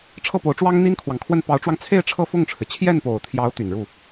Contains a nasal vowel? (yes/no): no